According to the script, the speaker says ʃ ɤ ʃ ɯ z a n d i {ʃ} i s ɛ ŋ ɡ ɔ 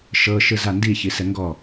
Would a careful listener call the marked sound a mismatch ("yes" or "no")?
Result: yes